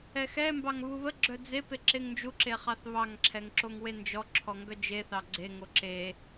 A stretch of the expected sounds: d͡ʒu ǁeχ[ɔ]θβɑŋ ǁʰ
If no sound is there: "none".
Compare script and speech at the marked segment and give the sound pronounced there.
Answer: ɑ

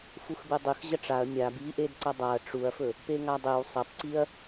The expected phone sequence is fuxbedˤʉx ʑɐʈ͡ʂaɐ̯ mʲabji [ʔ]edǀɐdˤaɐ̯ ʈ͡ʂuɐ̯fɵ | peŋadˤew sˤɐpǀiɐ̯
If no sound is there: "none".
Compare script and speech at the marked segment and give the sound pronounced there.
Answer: ʔ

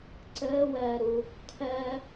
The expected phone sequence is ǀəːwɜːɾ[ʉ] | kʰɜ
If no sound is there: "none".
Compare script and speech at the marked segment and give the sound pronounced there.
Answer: u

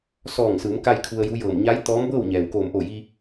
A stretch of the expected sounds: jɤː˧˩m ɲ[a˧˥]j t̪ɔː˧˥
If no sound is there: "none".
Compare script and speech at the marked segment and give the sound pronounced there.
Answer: a˧˥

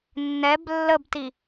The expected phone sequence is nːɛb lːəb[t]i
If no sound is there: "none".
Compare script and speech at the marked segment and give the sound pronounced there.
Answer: t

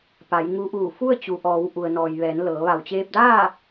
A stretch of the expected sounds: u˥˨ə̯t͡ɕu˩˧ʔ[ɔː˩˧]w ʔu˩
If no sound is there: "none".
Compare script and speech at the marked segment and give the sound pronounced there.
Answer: ɔː˩˧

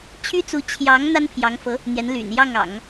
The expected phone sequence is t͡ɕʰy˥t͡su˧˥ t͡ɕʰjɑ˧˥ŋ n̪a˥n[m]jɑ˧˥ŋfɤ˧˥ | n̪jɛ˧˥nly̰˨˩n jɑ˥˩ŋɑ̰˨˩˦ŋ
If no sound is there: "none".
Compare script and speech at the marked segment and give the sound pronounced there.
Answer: pʰ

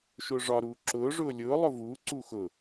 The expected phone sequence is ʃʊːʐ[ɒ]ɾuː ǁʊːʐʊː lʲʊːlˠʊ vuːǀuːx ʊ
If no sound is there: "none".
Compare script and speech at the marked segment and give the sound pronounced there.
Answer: ɒ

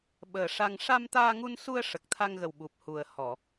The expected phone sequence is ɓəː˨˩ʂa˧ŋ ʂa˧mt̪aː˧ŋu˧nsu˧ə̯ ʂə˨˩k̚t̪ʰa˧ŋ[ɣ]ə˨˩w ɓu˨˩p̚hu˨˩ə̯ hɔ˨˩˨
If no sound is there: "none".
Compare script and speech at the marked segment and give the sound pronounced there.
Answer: ɣ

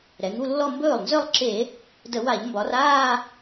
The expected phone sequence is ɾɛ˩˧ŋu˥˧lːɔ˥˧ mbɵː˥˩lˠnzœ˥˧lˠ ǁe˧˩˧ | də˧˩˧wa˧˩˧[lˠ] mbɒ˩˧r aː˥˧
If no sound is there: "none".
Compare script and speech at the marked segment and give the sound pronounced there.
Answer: ʎ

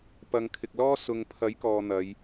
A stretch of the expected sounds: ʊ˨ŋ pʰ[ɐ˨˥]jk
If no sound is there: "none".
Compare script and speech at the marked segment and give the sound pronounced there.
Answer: ɐ˨˥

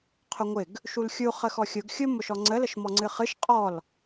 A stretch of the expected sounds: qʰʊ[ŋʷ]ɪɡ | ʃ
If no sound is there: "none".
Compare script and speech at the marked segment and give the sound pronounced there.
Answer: ŋʷ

